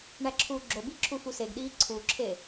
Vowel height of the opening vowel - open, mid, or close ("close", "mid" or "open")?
open